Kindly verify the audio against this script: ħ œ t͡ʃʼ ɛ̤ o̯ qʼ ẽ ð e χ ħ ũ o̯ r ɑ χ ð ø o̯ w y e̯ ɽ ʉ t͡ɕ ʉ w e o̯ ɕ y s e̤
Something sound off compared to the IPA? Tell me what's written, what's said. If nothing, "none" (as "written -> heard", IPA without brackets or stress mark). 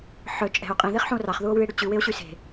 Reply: ø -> u